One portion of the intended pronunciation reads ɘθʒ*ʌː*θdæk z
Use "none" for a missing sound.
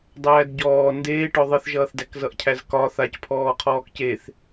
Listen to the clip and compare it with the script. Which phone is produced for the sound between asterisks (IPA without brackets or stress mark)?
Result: ʌː